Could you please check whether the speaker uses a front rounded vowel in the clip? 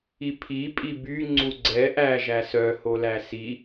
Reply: yes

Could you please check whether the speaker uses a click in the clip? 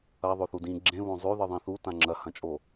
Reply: yes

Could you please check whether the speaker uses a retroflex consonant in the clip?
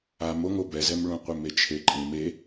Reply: yes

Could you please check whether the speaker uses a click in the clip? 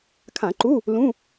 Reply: yes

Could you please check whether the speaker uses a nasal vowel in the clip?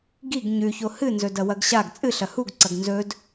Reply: no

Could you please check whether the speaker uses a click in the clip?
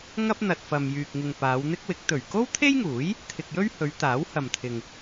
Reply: no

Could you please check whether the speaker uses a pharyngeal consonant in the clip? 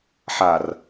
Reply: yes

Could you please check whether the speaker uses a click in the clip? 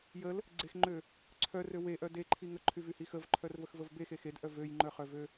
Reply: yes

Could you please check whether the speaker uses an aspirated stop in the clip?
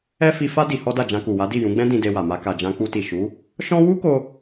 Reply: no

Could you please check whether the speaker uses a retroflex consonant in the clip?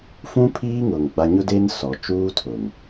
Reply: no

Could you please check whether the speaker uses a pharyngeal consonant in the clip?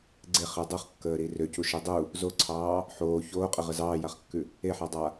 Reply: yes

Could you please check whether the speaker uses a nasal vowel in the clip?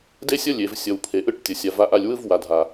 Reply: no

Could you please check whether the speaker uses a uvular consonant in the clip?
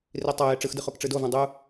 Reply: yes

